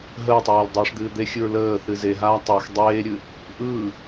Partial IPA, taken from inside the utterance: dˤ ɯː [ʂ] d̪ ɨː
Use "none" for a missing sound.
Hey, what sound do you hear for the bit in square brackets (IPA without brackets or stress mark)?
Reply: ʂ